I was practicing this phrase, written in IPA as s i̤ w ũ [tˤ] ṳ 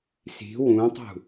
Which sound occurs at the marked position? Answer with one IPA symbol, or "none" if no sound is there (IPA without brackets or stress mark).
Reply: tˤ